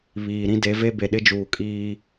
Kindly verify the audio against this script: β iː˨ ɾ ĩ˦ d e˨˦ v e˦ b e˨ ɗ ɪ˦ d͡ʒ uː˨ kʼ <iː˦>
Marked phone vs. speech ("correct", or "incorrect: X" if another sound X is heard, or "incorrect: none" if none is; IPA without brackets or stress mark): correct